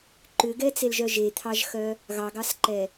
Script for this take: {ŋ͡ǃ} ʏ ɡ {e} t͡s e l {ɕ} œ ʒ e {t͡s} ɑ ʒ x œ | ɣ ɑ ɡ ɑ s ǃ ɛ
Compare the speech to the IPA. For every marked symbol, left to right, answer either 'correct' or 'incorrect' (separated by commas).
incorrect, incorrect, incorrect, incorrect